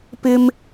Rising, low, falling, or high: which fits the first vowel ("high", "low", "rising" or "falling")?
high